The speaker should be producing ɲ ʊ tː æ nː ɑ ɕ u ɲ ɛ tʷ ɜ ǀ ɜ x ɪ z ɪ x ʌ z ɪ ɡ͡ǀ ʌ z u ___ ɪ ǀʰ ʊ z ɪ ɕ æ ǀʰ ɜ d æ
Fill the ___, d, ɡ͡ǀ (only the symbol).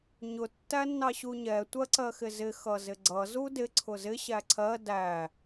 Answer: d